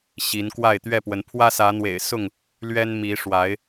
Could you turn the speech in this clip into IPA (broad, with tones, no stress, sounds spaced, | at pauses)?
ɕ i˨˦ n k w a˥˨ ɪ̯ t̪ ɥ ɛ˥˨ p w ə˨˦ n pʰ w ä˦ s ä˨˦ n̪ w ḛ˨˩ ɪ̯ s ʊ˥˨ ŋ | l ɥ ɛ˦ n m i˨˦ ʂ w a˨˦ ɪ̯